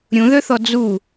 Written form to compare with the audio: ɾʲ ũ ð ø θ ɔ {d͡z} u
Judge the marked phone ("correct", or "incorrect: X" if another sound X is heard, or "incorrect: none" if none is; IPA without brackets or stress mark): correct